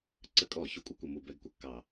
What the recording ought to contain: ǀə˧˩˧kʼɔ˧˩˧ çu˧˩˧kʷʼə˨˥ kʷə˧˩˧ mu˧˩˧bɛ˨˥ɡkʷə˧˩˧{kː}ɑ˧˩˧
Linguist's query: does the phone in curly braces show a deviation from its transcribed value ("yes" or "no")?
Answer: no